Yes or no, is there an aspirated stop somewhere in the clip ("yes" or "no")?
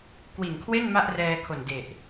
yes